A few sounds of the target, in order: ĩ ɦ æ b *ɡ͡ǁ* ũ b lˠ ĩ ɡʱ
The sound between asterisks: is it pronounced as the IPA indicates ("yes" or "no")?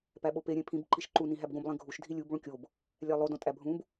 no